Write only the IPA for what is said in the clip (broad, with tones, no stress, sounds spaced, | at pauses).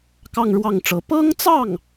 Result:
k ɑ˥˧ ŋ ɻ w ɑ˥˩ ŋ ʈ͡ʂ ɤ˧˥ p ɤ˥ ŋ t͡s ɑ˥˩ ŋ